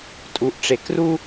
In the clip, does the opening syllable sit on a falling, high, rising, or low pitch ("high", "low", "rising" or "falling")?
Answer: rising